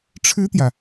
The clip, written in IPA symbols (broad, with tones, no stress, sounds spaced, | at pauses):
ʈ͡ʂʰ ɻ̩˥ t̪ j ä˨